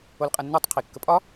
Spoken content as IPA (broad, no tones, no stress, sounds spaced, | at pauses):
o l qʼ ɐ nː ʉ tˤ qʰ i kː ə pʼ ɒ